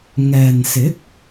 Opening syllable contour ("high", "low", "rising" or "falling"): low